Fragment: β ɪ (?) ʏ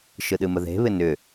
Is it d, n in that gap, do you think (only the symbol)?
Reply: n